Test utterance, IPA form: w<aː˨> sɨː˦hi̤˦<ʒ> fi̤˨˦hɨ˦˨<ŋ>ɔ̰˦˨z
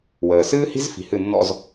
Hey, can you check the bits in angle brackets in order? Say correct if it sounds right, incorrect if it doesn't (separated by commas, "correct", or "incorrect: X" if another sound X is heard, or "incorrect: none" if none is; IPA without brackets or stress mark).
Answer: incorrect: əː˨, incorrect: z, incorrect: nː